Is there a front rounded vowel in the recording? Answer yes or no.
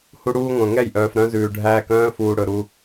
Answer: yes